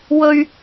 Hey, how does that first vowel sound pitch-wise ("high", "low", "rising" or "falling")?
low